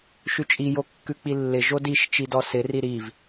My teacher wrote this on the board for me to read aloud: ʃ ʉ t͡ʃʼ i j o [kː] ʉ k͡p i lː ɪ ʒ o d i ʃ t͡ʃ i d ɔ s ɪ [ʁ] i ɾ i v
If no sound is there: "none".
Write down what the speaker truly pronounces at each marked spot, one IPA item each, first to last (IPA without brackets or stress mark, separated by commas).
kː, r